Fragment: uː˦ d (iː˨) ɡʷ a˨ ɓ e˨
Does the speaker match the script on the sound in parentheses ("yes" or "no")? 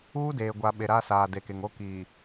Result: no